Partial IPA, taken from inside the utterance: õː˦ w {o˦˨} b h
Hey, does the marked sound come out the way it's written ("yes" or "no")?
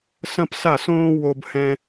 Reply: no